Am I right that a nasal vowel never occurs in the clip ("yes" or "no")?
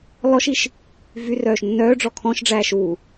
no